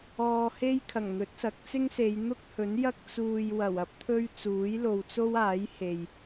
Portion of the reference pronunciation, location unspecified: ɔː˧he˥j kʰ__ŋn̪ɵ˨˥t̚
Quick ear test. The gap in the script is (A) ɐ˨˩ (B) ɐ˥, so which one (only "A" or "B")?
A